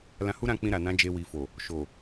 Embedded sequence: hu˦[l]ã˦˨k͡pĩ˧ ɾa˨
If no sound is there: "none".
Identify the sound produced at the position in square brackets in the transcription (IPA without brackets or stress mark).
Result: ɾ